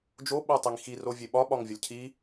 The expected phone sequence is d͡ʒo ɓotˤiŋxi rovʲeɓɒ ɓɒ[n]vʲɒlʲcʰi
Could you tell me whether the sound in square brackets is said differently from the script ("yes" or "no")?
yes